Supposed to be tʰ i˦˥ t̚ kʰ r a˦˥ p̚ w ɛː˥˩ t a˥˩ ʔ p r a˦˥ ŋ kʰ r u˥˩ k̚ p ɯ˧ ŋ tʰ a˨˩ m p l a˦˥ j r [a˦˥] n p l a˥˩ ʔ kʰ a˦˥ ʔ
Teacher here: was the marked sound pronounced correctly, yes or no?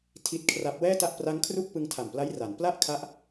no